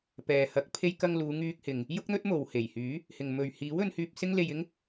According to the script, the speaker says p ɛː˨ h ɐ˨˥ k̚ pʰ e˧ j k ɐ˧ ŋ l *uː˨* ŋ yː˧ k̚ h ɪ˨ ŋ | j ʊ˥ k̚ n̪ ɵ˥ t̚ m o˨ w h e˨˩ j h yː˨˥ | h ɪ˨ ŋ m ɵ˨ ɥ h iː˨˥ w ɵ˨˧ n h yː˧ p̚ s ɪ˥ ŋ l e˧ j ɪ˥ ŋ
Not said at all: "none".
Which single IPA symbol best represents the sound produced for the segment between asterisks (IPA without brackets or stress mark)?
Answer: uː˨˧